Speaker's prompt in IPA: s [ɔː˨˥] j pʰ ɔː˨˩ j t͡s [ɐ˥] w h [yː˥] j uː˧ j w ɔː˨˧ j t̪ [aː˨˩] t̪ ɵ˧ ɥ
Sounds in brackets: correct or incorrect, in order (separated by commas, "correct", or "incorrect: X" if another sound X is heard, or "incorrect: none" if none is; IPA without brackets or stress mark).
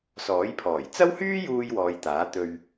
correct, correct, correct, incorrect: aː˨˥